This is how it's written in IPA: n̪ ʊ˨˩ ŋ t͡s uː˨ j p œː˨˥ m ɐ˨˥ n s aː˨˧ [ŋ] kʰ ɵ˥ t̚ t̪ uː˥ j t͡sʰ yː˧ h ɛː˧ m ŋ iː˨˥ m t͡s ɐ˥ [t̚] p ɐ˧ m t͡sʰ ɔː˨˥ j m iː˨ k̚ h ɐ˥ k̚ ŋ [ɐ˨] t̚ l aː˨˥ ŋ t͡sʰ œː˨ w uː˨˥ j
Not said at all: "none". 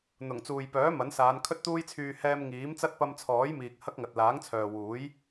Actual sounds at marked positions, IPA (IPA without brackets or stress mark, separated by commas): n, t̚, ɐ˨